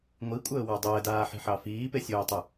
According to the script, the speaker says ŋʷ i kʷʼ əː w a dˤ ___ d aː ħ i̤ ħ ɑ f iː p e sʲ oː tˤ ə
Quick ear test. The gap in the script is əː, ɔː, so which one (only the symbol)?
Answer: əː